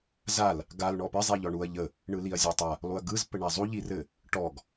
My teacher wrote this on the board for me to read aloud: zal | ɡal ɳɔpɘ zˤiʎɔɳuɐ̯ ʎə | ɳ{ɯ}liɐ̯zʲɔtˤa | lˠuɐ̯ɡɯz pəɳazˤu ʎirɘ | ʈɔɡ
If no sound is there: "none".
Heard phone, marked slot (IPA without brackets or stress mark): ɯ